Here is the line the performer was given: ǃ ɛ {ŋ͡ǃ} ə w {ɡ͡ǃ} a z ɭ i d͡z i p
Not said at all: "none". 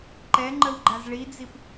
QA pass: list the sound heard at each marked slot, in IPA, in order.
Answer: ŋ͡ǃ, ɡ͡ǃ

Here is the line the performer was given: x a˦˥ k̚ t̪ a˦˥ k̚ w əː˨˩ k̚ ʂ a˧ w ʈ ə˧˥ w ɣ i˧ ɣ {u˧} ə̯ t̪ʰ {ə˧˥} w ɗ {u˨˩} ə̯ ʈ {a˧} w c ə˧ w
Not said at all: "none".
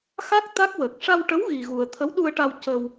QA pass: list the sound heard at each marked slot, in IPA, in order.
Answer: u˧, ə˧˥, u˧, a˧

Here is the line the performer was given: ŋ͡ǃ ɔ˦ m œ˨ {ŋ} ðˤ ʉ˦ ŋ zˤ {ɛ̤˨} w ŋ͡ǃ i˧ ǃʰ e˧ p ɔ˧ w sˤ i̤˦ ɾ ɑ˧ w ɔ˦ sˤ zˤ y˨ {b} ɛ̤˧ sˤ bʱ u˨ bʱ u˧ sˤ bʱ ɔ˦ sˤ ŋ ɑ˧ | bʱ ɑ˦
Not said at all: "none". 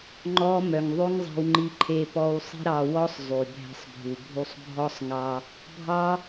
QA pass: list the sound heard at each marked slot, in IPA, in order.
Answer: ŋ, ɛ̤˧, bʱ

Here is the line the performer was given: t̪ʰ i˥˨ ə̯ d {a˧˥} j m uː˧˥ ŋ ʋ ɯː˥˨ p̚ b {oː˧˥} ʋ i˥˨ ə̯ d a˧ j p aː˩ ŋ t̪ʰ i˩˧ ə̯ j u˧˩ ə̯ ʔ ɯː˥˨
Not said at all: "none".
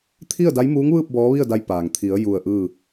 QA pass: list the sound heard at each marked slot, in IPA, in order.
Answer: a˧˥, ɔː˧˥

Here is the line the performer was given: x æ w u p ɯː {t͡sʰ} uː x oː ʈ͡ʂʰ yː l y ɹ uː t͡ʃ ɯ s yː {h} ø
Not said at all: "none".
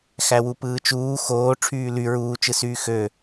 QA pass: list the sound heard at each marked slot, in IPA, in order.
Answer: t͡ʃ, x

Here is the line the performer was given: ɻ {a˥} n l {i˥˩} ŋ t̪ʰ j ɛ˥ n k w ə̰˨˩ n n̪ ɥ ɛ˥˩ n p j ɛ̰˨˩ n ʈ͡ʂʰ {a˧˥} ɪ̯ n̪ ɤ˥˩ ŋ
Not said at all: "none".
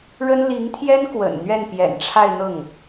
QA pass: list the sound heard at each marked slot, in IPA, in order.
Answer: ə˥, i˧˥, a˥˧

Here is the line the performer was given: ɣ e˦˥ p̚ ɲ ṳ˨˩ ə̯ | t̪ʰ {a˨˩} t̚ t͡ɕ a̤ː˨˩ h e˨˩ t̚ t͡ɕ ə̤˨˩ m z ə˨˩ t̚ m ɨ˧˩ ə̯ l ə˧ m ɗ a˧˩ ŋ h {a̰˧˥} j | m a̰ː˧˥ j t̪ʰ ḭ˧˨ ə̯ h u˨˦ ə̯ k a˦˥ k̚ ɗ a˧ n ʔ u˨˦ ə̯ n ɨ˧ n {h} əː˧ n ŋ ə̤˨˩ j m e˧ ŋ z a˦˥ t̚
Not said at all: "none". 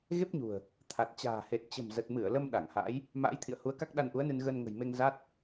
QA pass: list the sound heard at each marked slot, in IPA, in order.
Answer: a˨˩, a̰˧˥, ɣ

